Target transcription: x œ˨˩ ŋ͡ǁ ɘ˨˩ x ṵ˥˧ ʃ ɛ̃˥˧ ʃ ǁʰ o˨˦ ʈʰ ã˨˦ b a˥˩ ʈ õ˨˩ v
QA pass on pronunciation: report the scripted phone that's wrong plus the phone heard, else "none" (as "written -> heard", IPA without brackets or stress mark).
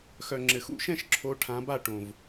none